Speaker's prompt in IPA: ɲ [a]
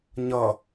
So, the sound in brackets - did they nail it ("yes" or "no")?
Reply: no